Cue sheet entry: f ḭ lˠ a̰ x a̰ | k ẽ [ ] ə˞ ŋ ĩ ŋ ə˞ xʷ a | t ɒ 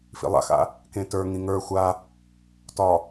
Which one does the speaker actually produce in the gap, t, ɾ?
t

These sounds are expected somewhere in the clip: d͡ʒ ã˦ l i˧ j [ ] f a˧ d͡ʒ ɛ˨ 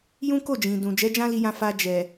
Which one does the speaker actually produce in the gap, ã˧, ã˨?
ã˧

